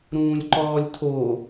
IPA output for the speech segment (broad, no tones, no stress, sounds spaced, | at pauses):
ɾ ũː lʲ ǃ ɔː lʲ tʰ o